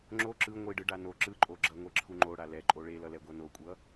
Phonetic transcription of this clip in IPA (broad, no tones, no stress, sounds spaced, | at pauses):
ŋ͡ǁ o ǁ ɯ ŋʷ i ɖ ɯ ɖ a n o ǁ ɯ ǃʼ o ɡ͡ǁ ʌ ŋʷ e ǁʰ u ŋ͡ǃ o ɽ a l ɛ ǃʼ o ɭ e l ʌ l ɛ ɡʷ ʌ n o kʷʼ ʌ